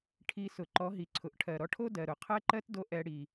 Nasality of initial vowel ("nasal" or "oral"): oral